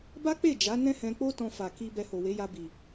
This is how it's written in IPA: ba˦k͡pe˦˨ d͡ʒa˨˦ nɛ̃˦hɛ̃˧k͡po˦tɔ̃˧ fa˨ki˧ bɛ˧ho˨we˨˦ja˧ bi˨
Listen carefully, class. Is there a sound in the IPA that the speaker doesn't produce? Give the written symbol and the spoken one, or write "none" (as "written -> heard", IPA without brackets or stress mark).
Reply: none